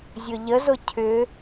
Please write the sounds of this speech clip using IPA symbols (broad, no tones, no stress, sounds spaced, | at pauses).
zʲ ʊ ʎ ə z ʊ cʰ ʏ